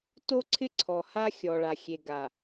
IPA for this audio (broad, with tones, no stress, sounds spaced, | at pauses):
t o˦ ǀʰ ɪ˦ ǀʰ ɔ˨ h a˦ xʲ ɔ˨ ɭ a˨ xʲ e˨ ɡ a˨